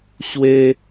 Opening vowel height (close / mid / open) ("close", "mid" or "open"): mid